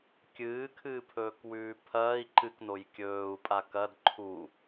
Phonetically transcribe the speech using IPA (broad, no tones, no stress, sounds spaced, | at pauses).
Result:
kʲ ɨː kʰ ɨː pʰ ɵː k w ʉː pʰ ɐː i̯ ǃ ɨ k n o j kʲ ɵː u̯ pʼ a k ɐ d ǃʰ u